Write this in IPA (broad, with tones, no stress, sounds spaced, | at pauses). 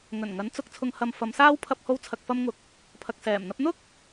ŋ ɵ˨˩ n ŋ ɐ˨˥ n t͡s ʊ˨˥ k̚ t͡sʰ ʊ˧ ŋ h ɐ˧ m f ɐ˨˧ m s aː˥ w pʰ ɐ˧ p̚ h o˧ w t͡sʰ ɐ˨ k̚ f ɐ˧ m ŋ ʊ˨ k̚ | pʰ ɐ˨ k̚ s ɛː˨˩ m n̪ ɐ˥ p̚ n̪ ʊ˥ k̚